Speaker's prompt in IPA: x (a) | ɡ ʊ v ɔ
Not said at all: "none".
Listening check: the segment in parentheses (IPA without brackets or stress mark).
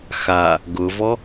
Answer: a